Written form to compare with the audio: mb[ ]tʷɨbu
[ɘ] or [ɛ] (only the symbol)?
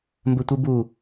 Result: ɘ